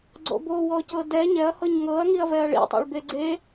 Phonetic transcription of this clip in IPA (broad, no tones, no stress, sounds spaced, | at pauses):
ɡ͡ǀ o̰ b o w ɔ c ɤ d ɛ ɲ ɛ ɐ̯ h ɤ ɲ ŋ ɤ ɐ̯ ŋ i ɐ̯ v ɛ ɐ̯ ɭ ḭ tˤ o̰ ɭ b e ɡ͡ǀ e